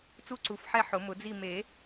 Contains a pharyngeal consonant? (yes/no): yes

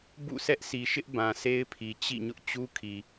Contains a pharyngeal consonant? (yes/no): no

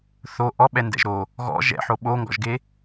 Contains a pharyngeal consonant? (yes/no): yes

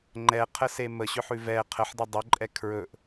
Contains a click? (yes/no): yes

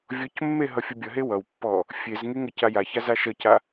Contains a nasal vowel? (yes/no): no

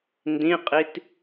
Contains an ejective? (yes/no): yes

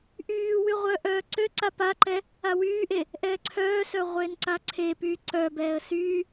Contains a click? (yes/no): yes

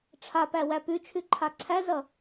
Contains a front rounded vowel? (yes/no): no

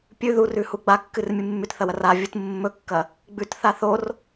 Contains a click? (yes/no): no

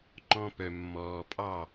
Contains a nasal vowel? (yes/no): yes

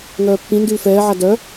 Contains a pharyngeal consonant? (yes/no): yes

